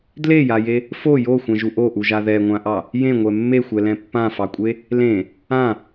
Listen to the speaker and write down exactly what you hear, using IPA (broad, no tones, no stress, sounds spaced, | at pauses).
d l e j a j e | f o j o xʷ ɛ̃ ʒ u ʔ o ʔ u ʒ a ð ɛ ŋʷ ã ʔ ɑ | j ẽ ŋʷ ɛ mː e xʷ ɛ l ɛ̃ pː ã f ɑ kʷʼ e | l ẽ | ã